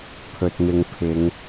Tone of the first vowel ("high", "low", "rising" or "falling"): low